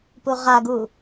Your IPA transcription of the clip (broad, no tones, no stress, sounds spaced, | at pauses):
p u ʁ a ɡ u